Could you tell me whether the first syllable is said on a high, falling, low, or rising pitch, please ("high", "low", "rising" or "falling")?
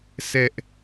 high